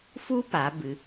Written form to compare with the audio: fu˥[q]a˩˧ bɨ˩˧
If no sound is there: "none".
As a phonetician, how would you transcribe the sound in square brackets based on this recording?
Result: p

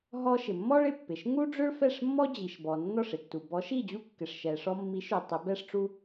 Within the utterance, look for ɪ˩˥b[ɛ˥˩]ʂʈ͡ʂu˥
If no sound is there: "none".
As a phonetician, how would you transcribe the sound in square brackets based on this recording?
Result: ɛ˥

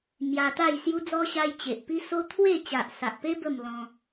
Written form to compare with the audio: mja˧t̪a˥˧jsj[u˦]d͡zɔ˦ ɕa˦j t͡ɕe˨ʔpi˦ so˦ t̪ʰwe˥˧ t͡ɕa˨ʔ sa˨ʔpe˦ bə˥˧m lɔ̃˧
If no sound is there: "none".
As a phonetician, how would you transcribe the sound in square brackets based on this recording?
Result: u˦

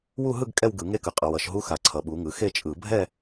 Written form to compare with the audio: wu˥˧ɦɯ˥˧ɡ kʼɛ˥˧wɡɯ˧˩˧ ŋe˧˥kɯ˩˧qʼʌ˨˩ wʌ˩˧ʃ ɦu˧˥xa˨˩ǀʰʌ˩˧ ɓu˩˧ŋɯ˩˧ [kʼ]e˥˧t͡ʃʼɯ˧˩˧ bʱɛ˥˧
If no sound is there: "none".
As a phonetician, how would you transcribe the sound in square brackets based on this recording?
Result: x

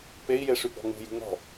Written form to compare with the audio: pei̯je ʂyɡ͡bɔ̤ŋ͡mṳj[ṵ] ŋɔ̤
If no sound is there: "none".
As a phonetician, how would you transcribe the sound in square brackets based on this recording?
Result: ṳ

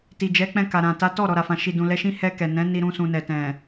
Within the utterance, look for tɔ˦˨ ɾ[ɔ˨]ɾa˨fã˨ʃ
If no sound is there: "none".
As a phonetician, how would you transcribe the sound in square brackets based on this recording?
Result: ɔ˨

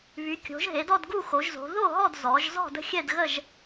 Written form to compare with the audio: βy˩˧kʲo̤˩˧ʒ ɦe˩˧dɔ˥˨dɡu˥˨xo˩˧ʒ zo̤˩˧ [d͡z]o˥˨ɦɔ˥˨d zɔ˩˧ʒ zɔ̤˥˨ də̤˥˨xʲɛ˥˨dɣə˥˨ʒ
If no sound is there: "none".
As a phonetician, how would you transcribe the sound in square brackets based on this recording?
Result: ð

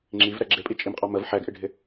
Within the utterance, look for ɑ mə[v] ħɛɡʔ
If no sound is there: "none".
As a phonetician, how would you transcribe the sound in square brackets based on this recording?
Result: v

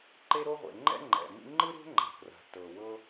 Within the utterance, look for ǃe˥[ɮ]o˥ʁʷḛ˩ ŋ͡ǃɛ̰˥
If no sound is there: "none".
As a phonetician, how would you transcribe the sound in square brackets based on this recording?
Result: ɾ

